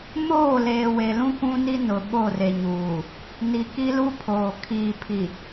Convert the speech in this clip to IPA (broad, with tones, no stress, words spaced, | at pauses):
moː˦˨leː˨we˨lũ˦ kʷũ˦ni˦ nʊ˨ɓo˦˨re˨ ɲuː˨ | ni˨ki˦ lu˦ pʰoː˨ kʰiː˨ pʰi˨